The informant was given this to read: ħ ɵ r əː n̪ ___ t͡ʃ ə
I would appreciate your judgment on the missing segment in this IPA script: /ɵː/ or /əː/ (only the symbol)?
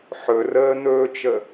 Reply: ɵː